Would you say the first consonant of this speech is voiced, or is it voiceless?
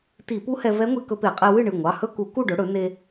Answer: voiceless